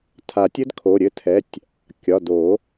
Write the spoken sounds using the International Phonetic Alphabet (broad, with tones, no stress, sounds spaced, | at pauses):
tʰ a˨˩˦ tʲ ɘ˦˥ d kʰ o˩˧˩ ɾʲ ɘ˦˥ tʰ ɛ˩˧˩ tʲ | kʲ ɒ˩˧˩ d o˨˩˦